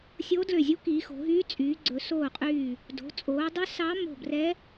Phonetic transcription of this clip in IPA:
sʲ oː˧˥ d l ø˧˩ zʲ u˧˥ k iː˩˧ x o̤˩˧ ɦ yː˧˥ t͡sʼ yː˩˧ ɡ͡ǀ ɵ˩˧ s oː˧˩ qʼ yː˧˩ | d o̤˩˧ t͡sʼ oː˩˧ dˤ ɵ˧˥ s ɑ˧˥ m o̤˧˩ b r ɛ˧˥

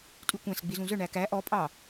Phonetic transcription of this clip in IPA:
tʼ y kʷ æ̃ s ɡ͡b i z ũ z œ ɳ æ k æ ʔ ɔ pʼ ɑ

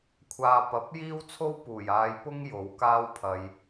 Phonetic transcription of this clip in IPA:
kʷʰ aː˧ p ɐ˨˥ p̚ j iː˥ w t͡sʰ o˥ w p uː˨˩ j aː˨˧ j p ʊ˥ ŋ j o˨˥ w k aː˥ w pʰ ɐ˧ j

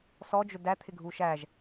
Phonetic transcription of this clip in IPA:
s ɔ d͡ʒ ʊ d æ t̪ʰ ɪ ɡʱ u ʃ æ ʒ

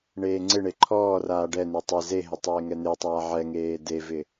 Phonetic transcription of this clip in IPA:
ɳ eː ŋ͡ǀ ɪ ɳ e ǃʰ ɔː r aː ɖ ɛ n e tˤ ɪ z e ɦ ɪ tˤ eː ŋ ɛ n̪ e tˤ aː ʕ ɛ ŋ eː d e v ɪ

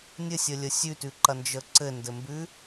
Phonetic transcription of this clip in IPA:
nʲ ɘ sʲ ə lʲ ə sʲ ʉ t ʉ ǃ ɐ n d͡ʒ ə ǀ ɘ n d ɘ m b ʉ

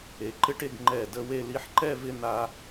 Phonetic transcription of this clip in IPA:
e˩˧ ǃ ɪ˥ ʈ e˥˧ ɡ ŋ͡ǃ ɛ˧˩ d ə˥˧ w e˥˧ l i˧ ħ ǃ ɛ˥˧ v ɪ˥˧ n̪ a˧

